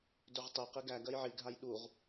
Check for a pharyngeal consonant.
present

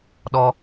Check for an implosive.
present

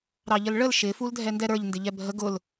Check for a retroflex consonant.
present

